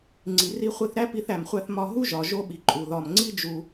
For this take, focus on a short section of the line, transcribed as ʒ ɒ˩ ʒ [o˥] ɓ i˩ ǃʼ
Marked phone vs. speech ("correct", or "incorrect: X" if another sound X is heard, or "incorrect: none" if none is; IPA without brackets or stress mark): correct